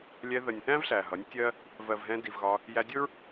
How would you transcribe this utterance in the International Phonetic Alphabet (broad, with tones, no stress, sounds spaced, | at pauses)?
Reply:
lʲ ɛ˧ ð ə˨ nʲ θ æ̃˦ v ɬ æ˨ ɦ ʌ˨˦ nʲ tʲ ɜ˦ | v ɜ˨ v ɦ ɛ̃˧ d i˨ v ɣ ɒ˧ | j æ˧ dʲ ʊ˦ ɹ